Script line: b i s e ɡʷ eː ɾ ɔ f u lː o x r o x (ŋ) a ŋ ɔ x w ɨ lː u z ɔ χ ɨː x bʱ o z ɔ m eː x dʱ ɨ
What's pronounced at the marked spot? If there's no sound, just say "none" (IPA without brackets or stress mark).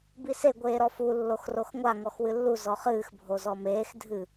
ŋʷ